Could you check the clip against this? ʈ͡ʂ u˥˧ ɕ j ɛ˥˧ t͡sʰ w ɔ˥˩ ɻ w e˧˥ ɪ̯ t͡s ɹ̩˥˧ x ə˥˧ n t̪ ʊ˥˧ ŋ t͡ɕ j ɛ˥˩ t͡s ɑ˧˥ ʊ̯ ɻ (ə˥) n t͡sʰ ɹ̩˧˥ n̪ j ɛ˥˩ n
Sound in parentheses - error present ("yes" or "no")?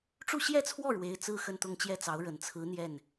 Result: yes